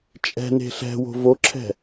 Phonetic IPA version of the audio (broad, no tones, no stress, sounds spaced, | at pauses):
t͡ʃʼ ɛ̤ n e̤ ɬ ɛ̤ w o̤ v o ǁʰ ɛ̤